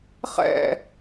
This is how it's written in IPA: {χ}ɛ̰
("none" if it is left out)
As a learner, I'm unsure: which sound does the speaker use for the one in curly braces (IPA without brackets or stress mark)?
χ